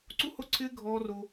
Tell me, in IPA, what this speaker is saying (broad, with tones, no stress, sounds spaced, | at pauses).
ǀ u˦ h o˦ ǀʰ ɪː˦ ɡʱ ɔː˦ r o˦